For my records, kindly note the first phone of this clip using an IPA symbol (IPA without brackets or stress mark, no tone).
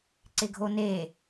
ǀ